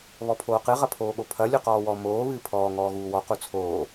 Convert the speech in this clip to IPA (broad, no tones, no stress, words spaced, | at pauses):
βɔpʰoːqɨ ʁɐpʰoːɠopʰɐ lʲuqɔːwɔ moː βɨːpʰɔː ŋɔːɣuːwɔ qut͡sʰoː